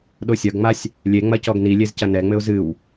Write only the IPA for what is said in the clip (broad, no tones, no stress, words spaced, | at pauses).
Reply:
ɗosʲɐɡŋ͡masʲ | lʲeŋ͡mɐ cɔɡnilʲez cɐnɛŋ͡mɘʊ̯ zɨw